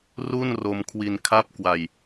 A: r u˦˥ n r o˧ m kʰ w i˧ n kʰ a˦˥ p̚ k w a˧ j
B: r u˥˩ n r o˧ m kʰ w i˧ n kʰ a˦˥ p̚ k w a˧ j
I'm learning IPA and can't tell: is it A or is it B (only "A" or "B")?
B